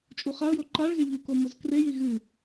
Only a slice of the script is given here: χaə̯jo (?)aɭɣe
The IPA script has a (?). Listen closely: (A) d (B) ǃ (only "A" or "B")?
B